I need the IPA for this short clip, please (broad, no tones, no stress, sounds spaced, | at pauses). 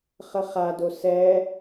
χ ə χ a d o s ɛ